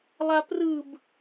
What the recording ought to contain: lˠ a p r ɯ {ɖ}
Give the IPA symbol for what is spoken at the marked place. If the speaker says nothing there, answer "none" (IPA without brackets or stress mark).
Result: b